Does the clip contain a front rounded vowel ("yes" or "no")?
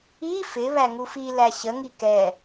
no